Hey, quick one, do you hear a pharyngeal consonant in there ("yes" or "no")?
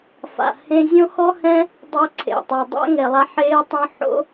yes